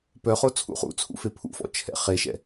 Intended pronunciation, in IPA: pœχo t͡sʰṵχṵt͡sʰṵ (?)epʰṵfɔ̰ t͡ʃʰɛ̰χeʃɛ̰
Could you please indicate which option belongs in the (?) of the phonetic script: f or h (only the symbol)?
f